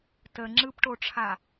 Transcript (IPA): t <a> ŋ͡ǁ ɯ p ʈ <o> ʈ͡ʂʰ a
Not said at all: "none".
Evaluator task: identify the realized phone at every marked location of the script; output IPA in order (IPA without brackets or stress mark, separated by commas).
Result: ə, o